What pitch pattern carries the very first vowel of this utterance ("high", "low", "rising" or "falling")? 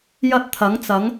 high